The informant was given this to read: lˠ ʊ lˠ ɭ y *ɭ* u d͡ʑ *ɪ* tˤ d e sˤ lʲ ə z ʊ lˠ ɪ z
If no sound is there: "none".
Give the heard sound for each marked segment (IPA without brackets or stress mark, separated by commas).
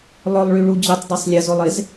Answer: ɭ, ɪ